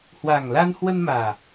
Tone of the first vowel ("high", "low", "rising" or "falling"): low